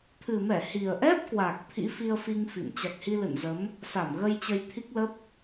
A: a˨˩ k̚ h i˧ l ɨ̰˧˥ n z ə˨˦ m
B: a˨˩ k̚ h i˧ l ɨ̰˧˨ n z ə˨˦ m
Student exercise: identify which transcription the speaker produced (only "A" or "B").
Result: B